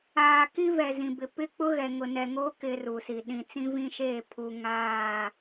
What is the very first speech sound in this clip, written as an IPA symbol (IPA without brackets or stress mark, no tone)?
aː